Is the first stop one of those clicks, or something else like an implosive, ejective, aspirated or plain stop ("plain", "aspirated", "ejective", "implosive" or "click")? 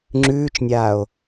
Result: click